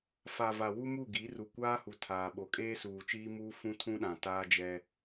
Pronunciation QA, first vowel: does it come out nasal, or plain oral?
oral